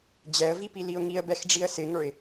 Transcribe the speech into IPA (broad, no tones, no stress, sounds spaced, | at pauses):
d͡ʑ ɛ ə̯ v i p i l i ʊ̯ ŋ i ə̯ b ɛ x ɖ͡ʐ i ə̯ s ɪ ŋ ə˞ ɪ̯